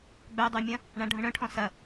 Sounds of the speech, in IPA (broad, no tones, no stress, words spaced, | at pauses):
ɡ͡bœdˤymʲɐ̃ | ɳãɖʱə̃ɳœ̃ʈʰɔ̃ sɐ